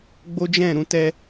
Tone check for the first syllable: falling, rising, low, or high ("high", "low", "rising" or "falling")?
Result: high